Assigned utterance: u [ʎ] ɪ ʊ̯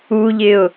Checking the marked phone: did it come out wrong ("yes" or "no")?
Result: no